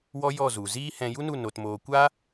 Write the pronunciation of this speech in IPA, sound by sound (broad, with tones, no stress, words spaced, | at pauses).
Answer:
wɔ˦jɔ˦˨zu˨ ziː˦hɛ̃˧ ju˦nu˦˨ no˨tmoː˨ kʷa˦